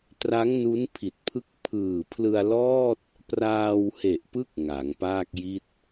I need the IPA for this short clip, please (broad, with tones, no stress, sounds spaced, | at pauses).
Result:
t r a˦˥ ŋ n u˦˥ n pʰ i˨˩ t̚ pʰ ɯ˦˥ k̚ pʰ ɯː˨˩ pʰ l ɯ˧ a̯ l ɔː˥˩ t̚ | p r aː˧ w h e˨˩ ʔ p ɯ˦˥ k̚ ŋ a˩˦ ŋ p aː˥˩ k̚ j i˥˩ t̚